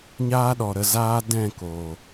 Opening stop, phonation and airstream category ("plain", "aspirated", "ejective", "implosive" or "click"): implosive